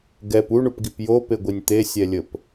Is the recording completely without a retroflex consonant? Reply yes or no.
no